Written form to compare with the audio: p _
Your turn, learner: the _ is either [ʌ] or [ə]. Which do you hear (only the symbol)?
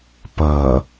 ʌ